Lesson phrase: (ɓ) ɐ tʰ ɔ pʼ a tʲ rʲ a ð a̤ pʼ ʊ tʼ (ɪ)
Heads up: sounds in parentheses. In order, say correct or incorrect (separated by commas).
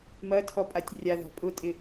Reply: incorrect, correct